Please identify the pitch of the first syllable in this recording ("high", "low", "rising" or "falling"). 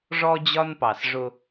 high